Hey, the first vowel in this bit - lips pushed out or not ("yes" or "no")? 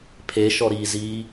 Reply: no